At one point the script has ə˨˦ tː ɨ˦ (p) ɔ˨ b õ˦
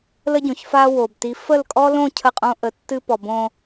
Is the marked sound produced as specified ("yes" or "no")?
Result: yes